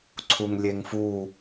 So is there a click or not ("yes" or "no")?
yes